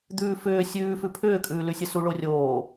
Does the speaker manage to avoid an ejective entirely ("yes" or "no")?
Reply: no